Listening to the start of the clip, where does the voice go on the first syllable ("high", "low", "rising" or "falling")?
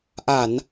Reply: low